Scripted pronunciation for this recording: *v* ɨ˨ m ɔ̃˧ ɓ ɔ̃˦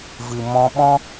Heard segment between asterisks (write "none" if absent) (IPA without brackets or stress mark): v